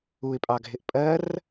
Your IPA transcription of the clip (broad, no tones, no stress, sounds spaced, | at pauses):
u ɪ̯ pʼ ɑ ɡʱ ɪ ʔ pʼ ɜ r